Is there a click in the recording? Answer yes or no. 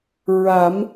no